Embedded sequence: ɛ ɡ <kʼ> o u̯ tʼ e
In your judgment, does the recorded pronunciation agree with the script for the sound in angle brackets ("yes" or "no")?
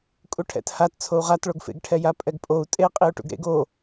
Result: no